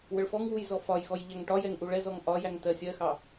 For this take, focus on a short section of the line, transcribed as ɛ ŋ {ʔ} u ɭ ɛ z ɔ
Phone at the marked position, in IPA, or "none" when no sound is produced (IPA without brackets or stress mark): ʔ